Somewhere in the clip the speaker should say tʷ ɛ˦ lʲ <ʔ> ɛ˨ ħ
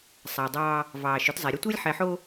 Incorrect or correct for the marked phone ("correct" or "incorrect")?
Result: incorrect